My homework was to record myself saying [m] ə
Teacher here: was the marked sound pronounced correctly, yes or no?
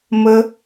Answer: yes